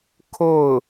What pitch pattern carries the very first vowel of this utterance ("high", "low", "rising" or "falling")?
falling